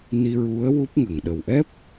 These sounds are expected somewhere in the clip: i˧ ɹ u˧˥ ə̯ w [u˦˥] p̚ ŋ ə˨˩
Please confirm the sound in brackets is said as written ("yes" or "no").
yes